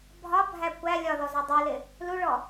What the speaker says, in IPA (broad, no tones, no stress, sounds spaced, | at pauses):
bʱ ɒ bʱ æ kʷ æ lʲ ɒ ð ɔ z ɒ dˤ u l ɪ | l u ɭ ɔ